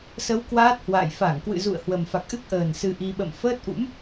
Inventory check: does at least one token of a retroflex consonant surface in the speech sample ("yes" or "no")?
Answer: no